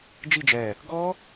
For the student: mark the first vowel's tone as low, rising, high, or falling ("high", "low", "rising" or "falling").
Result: falling